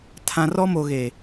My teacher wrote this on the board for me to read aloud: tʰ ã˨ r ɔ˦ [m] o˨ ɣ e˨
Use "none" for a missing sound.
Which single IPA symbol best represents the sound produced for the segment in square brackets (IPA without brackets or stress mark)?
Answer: m